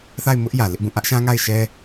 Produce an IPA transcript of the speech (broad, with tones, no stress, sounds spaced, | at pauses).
θ a˦˨ ɪ̯ m ʊ˦ ʔ j ä˨ l ɪ˦ ʔ b ũ˦˨ ʔ ä˦ ʔ ʃ ã˦ ŋ a˦˨ ɪ̯ ʃ ɛ˦